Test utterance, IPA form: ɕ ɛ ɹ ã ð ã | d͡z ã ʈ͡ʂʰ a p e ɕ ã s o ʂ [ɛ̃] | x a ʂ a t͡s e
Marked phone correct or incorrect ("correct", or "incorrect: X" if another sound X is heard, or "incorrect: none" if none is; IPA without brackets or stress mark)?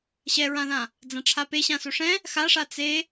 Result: correct